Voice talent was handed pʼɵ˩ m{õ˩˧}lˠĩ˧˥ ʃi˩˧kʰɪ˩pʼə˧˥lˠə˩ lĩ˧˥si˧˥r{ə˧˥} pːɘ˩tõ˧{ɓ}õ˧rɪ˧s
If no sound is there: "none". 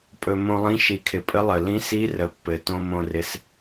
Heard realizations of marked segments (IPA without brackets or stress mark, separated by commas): õ˧, ə˩˧, m